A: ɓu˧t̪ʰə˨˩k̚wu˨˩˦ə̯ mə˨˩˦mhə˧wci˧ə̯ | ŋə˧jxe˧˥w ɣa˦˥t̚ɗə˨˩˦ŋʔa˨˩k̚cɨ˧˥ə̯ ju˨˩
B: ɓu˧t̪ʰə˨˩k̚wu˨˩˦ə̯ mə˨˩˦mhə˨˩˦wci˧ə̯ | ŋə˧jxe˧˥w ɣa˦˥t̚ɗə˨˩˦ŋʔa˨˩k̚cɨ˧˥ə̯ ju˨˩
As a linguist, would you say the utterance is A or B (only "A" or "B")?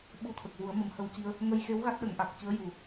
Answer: A